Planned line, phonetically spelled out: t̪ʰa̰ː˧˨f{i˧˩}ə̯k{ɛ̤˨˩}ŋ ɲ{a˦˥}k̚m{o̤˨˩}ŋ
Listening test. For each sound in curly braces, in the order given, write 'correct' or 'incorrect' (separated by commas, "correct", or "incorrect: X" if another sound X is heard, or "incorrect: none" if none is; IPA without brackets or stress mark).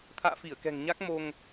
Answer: correct, correct, correct, incorrect: o˧